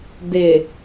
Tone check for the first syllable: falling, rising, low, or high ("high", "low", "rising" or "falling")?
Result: low